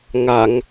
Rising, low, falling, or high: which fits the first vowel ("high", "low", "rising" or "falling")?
low